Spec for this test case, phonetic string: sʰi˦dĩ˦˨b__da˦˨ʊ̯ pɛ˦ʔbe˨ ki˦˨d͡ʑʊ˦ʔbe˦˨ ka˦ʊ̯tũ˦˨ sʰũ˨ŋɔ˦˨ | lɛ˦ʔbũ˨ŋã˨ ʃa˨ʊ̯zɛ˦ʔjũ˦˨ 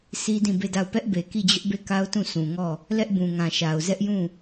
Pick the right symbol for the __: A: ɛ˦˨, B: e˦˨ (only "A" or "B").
B